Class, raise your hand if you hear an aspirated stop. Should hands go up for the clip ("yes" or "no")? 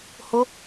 no